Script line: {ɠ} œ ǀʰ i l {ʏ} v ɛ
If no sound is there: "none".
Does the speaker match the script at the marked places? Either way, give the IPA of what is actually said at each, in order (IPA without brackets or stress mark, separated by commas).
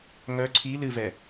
ŋ, ɨ